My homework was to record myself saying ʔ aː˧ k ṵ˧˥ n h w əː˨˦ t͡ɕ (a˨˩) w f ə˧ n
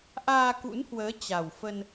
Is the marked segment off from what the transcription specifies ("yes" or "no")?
no